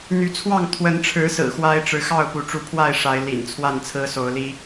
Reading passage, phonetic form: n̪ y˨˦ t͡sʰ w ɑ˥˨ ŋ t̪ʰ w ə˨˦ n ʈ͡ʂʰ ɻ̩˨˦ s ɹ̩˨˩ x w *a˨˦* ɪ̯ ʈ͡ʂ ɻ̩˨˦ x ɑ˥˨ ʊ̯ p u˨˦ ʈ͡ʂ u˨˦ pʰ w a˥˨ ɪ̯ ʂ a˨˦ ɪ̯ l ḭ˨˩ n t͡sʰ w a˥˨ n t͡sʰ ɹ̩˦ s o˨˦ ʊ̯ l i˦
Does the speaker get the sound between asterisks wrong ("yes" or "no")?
yes